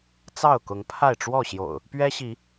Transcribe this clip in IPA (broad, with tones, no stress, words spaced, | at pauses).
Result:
t͡sɑ˥˨ʊ̯kʊ˨˦ŋ pʰa˥˨ɪ̯ ʈ͡ʂwɔ˥˨ɕjo̰˨˩ʊ̯ | pɥɛ˦ɕi˨˦